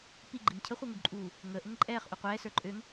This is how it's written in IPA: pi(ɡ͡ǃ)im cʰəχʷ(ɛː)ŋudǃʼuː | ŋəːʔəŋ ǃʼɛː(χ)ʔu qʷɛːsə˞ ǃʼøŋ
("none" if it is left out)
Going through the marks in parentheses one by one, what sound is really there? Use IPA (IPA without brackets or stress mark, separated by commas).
ɡ͡ǃ, əː, χ